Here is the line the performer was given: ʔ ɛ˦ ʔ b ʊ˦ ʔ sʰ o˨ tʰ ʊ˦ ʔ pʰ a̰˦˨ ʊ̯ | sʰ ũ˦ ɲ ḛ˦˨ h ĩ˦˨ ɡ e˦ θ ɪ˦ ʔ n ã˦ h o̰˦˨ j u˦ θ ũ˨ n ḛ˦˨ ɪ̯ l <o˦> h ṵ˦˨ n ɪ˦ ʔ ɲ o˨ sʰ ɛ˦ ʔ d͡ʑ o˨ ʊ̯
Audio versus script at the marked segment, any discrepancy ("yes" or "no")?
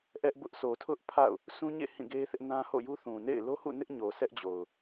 no